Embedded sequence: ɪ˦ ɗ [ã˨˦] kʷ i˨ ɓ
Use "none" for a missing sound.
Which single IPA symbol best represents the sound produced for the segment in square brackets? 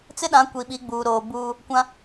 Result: ã˨˦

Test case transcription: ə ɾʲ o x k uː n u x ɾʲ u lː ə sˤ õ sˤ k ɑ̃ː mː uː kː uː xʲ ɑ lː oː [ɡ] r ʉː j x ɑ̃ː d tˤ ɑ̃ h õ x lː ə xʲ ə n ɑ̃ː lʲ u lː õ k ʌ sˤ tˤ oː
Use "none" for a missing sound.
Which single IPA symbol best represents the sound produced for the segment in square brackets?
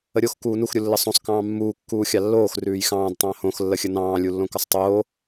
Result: x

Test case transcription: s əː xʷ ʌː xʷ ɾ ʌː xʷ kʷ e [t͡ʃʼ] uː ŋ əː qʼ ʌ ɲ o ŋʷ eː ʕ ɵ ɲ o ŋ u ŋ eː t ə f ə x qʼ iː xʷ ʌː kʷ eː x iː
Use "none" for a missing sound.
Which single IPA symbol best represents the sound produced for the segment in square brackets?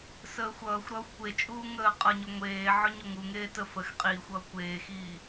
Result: t͡ʃʼ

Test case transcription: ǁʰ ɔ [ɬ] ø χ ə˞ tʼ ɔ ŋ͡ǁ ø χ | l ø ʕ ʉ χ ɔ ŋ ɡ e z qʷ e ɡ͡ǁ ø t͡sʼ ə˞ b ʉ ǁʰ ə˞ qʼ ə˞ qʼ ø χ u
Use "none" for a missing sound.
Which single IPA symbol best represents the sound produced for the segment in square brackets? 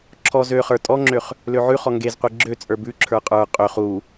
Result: z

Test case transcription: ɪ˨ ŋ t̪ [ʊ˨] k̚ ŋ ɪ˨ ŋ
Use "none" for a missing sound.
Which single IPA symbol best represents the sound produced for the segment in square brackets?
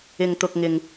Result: ʊ˨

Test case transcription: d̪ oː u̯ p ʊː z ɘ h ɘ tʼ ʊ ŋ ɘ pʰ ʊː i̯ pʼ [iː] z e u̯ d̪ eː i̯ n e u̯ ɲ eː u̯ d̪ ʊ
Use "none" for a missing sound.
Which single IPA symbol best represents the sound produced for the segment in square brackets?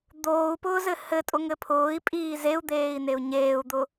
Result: iː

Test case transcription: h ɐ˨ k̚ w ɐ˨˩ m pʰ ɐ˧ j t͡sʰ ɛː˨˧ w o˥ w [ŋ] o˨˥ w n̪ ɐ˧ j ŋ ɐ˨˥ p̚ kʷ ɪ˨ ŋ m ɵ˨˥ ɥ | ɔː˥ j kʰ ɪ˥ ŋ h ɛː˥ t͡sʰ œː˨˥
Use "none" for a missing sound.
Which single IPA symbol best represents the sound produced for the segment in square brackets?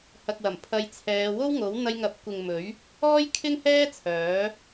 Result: ŋ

